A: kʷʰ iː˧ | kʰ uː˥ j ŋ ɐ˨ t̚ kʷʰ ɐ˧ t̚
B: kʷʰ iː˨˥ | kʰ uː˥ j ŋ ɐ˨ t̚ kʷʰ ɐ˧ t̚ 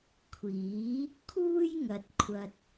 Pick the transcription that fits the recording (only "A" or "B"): B